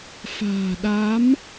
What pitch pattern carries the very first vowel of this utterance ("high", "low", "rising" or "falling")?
low